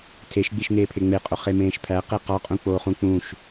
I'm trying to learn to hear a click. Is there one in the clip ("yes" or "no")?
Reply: no